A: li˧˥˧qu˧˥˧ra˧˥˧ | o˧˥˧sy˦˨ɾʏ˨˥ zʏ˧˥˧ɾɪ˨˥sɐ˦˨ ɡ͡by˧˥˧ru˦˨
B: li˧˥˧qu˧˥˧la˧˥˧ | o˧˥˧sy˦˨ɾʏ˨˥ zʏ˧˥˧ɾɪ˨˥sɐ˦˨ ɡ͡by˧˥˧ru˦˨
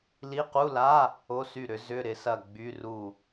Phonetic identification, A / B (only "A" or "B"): B